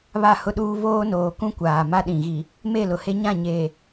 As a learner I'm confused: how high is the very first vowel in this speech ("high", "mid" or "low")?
low